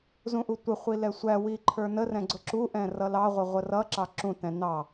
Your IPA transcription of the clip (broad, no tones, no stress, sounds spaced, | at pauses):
z ũ ʔ u tʷ ɪ χʷ i l ɛ sʷ æ w i ǃʰ ə˞ n ə r ɛ̃ ɡ͡ǀ ʊ ǁ u ʔ ɛ̃ r ʌ l ɑ ʁʷ ə ʁʷ ə r ʌ ǁ ɑ ǁ ũ t ɛ̃ n ɑ